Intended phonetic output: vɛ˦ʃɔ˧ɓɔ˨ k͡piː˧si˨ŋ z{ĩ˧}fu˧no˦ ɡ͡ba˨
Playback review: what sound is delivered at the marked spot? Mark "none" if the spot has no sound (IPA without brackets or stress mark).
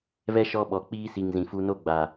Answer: ĩ˨